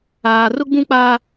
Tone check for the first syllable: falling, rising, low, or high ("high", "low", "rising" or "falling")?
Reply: high